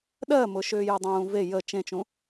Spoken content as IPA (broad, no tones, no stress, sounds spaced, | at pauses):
ɗ ɜ m ʊ ʃ ʏː j ʊ dˤ ũː v e j ə t͡ʃ ẽ t͡ʃ ũ